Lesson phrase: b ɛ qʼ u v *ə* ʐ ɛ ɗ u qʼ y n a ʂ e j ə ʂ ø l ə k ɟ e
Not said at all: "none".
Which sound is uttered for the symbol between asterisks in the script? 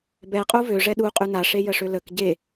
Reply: ø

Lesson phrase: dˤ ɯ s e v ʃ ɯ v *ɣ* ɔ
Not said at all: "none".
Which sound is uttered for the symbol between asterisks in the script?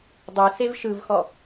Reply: x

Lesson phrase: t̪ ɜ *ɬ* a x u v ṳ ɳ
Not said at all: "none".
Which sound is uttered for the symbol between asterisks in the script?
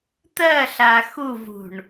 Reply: ɬ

